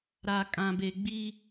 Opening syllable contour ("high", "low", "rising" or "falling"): low